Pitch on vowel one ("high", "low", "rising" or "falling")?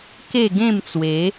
falling